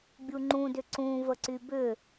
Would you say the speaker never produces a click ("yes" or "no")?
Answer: no